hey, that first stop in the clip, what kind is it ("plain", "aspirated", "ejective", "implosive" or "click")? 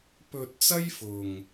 plain